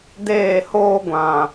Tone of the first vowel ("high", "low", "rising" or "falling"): falling